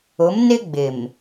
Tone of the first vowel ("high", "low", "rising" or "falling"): rising